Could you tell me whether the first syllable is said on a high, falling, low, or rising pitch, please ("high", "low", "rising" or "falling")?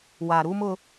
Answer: low